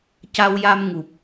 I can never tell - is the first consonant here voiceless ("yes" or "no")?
yes